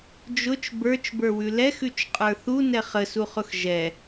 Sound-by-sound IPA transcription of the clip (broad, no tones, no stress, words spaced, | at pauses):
d͡ʒʊt͡ʃ bə˞t͡ʃbə˞wʉ lɛxʉt͡ʃqʼə˞ θunɛ χəsuχʊx ʒɛ